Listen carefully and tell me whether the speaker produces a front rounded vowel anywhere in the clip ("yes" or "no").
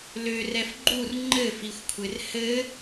yes